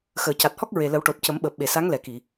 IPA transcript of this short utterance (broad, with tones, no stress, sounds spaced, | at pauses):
x əː˨˩˨ c a˨˩ t̚ h ɔ˦˥ k̚ ɹ e˨˩ l ə˨˩˦ w ʈ o˨˩ t̚ c ə˨˩˦ m ɓ əː˨˩ p̚ ɓ e˨˩˨ s a˧˥ ŋ l ɛ˨˩ k i˨˩˨